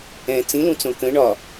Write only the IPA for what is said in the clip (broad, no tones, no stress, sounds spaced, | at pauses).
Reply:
ɛ̃ t͡s ĩ l ũ t͡s õ k ə̃ ɳ ɒ